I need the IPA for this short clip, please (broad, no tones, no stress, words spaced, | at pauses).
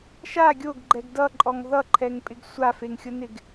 ʃa ɡʲoɡɡ͡ǃɛɡ dʌǃʼɔŋ ðʌǃʰɛŋpʼɪɡ sʷafeŋxʲʊnɪɡ